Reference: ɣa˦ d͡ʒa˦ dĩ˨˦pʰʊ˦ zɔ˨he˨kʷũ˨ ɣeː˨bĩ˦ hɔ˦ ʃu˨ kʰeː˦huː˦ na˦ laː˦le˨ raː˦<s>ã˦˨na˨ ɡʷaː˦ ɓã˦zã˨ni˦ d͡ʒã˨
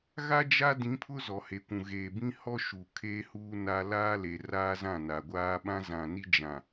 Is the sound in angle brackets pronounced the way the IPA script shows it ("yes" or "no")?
no